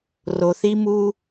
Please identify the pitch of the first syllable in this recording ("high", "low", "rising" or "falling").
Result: low